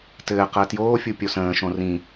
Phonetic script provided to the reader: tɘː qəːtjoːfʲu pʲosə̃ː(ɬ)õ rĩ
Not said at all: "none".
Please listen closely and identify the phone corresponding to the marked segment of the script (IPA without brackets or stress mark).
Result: ʃ